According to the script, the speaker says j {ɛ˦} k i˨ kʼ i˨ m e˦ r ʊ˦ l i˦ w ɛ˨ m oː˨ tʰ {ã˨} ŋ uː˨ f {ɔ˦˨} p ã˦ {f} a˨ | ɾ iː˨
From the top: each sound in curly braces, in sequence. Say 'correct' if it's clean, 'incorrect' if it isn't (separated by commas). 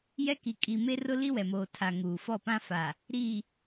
correct, incorrect, correct, correct